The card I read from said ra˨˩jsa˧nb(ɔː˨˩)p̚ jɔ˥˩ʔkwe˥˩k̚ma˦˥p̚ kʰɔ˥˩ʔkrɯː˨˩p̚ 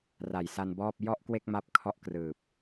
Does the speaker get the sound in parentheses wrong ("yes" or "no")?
yes